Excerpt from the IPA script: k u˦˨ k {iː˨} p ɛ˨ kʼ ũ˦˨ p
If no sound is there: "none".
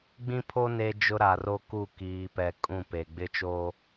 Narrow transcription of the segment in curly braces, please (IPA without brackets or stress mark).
iː˨